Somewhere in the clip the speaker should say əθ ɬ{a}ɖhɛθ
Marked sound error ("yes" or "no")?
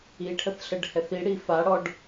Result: yes